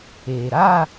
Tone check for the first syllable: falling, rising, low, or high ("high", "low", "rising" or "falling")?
low